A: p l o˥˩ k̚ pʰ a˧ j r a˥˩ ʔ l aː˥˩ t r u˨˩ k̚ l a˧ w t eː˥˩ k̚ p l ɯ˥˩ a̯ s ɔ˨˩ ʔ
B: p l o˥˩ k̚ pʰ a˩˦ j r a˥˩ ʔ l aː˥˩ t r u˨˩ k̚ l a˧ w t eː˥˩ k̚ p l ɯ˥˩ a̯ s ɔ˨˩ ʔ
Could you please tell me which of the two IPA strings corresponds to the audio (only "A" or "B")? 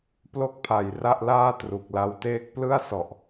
B